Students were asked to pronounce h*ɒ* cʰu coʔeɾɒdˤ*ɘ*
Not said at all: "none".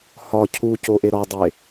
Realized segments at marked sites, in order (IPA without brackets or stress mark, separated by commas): ɒ, e